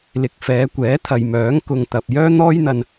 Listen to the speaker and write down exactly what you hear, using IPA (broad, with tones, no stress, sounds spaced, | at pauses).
l ɪ˨ k̚ f ɛː˨˧ kʷ ɛː˨˥ t̪ʰ ɐ˨ j m œː˨˥ ŋ k ʊ˧ ŋ t̪ ɐ˨ p̚ j œː˥ n̪ ɔː˥ j n̪ ɐ˧ n